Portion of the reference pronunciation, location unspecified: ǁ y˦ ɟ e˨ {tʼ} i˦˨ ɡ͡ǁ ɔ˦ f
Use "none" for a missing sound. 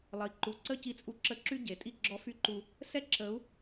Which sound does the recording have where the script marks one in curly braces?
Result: tʼ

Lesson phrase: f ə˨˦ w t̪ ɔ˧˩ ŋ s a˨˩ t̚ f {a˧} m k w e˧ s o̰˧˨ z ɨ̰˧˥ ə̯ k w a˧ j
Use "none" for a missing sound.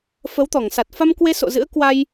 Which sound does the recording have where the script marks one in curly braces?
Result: a˧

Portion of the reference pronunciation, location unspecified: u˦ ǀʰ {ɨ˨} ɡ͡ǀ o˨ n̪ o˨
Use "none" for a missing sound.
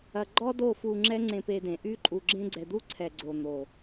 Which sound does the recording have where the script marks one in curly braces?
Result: ɛ˨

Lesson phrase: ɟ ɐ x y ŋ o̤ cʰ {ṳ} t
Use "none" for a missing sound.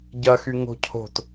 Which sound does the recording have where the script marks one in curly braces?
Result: o̤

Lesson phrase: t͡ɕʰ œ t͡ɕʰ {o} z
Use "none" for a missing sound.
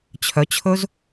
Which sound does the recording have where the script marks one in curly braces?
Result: ɵ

